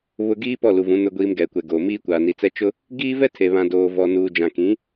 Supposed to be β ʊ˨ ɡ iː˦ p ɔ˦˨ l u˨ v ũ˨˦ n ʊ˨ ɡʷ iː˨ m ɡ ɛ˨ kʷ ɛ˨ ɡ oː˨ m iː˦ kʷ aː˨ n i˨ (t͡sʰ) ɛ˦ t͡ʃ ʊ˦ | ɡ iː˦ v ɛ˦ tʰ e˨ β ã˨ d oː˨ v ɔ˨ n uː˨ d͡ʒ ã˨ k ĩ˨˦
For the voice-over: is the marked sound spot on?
no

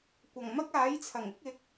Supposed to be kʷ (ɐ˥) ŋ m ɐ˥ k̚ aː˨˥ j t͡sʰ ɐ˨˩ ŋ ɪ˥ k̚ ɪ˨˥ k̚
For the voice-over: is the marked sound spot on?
no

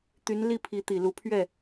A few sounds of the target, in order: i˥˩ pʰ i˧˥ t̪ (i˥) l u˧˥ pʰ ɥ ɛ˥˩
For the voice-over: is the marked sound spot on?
no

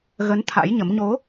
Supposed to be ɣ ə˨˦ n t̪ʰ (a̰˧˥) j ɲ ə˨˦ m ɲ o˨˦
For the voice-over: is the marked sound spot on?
yes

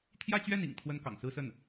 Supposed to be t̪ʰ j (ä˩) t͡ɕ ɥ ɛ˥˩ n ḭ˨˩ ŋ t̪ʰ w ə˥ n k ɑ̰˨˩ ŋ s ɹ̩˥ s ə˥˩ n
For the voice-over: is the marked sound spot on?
no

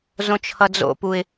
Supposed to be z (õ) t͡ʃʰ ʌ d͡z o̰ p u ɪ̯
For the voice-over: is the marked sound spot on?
yes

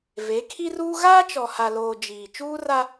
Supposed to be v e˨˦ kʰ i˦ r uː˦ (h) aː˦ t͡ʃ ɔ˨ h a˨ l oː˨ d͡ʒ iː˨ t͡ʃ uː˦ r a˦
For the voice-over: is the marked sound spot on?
no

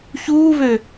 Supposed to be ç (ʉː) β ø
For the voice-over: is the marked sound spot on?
no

